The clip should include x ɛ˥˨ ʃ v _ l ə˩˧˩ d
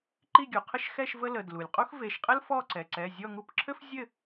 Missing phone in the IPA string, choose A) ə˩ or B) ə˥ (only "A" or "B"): B